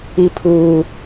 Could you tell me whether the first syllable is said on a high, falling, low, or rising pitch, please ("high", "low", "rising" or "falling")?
high